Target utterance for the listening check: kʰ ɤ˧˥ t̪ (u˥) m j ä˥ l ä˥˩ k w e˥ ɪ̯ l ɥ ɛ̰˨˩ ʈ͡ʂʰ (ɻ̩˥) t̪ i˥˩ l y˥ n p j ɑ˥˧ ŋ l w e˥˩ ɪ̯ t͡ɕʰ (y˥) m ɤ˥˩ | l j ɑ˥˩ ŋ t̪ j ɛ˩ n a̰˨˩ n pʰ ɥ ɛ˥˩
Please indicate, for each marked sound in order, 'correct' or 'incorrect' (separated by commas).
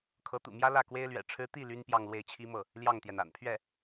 incorrect, correct, incorrect